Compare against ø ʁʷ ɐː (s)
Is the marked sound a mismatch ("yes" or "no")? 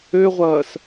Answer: no